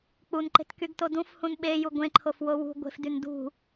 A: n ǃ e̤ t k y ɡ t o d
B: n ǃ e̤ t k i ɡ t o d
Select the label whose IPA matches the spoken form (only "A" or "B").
A